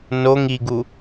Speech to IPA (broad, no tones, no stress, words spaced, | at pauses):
noŋ iɡu